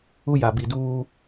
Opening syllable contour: high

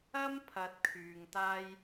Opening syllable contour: high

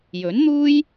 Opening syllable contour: rising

